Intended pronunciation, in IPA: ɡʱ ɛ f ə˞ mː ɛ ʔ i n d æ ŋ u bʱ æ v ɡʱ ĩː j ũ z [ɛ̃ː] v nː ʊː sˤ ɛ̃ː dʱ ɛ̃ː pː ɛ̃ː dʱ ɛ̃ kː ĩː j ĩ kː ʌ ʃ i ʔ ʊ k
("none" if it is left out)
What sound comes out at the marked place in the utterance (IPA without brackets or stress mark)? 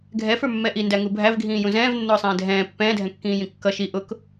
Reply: ɛ̃ː